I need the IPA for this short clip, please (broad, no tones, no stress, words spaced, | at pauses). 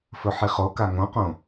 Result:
fɵħiχoka ŋõqõ